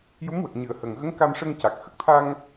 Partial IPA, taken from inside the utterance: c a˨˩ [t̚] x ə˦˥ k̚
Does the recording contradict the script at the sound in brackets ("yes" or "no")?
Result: yes